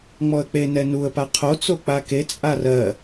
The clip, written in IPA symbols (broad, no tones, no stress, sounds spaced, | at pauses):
ŋ͡m ɔ ə̯ k͡p e n ɛ n u ə̯ p a qʰ o t͡s o k͡p a k e t͡sʼ a r ɜ